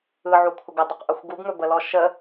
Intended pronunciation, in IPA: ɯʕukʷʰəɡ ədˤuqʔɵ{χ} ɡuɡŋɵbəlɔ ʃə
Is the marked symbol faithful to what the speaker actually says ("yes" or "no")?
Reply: no